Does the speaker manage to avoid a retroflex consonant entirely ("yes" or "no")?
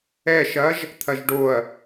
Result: no